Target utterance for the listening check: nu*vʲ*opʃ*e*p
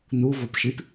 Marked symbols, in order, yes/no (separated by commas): no, no